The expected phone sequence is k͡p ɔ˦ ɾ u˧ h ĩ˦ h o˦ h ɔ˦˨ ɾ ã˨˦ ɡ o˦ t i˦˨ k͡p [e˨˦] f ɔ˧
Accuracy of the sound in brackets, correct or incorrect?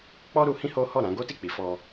incorrect